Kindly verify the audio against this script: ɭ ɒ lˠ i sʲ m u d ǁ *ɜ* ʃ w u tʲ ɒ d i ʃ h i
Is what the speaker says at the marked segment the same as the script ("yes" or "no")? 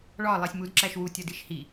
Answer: no